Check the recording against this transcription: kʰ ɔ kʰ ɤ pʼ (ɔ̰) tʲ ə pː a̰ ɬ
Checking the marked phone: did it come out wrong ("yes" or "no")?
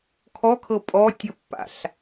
yes